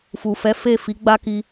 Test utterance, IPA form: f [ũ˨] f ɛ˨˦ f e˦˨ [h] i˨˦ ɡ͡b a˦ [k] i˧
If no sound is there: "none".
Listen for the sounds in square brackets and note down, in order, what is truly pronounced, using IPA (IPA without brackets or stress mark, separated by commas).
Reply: u˨, f, k